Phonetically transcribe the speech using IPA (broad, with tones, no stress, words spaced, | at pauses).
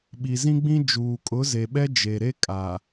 ɓi˨zĩ˦ɡ͡bĩ˦d͡ʒuː˨ kʼʊ˨˦ze˨ɓɛ˦ d͡ʒe˨ ɾe˦kʼa˨